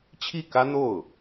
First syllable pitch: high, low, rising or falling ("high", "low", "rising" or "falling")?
falling